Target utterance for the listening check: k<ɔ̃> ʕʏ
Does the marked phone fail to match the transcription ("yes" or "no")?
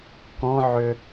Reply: no